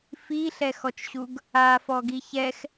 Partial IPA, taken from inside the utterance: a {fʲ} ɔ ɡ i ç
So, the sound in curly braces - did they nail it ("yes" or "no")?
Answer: no